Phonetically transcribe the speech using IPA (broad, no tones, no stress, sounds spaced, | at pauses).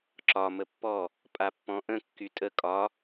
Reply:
ǁ ɒ m ə pː ɔ | pʼ a pː ɔ̃ ʔ ə̃ kː y tʼ ə kʼ ɒ